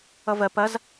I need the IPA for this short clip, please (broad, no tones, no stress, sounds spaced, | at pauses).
ʌ v ɜ p ɐ z